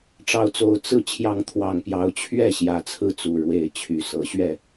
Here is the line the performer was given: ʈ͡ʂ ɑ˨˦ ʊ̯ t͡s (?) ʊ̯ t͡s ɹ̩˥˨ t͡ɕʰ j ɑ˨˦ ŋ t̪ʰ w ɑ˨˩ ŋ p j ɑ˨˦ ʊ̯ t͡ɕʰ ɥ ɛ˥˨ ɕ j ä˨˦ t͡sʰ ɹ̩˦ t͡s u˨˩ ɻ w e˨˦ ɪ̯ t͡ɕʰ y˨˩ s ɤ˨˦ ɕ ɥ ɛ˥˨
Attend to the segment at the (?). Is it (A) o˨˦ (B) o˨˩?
B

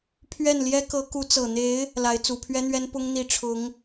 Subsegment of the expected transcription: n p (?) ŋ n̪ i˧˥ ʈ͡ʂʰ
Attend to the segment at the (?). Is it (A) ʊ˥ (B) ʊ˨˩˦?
A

